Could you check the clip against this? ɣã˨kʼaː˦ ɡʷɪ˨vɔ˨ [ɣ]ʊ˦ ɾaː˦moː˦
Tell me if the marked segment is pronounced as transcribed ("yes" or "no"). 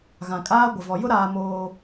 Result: no